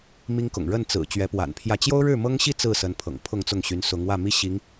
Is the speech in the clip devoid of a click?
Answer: yes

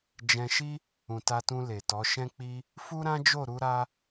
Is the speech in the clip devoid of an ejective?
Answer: yes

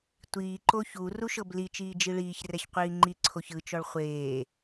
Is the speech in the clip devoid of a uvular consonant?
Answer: no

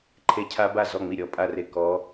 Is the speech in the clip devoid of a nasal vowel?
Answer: yes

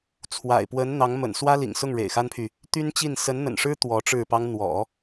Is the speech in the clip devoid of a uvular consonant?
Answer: yes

